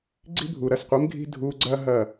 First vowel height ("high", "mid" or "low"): high